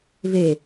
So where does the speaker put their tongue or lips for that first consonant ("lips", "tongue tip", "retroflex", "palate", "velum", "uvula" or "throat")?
lips